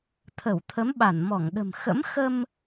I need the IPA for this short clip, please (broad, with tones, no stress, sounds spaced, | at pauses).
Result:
t̪ʰ ə˧˩ w t̪ʰ ə˨˦ m ɓ a˧˩ n m ɔ˧˩ ŋ ɗ ə̤˨˩ m x ə̰˧˥ m x ə˧ m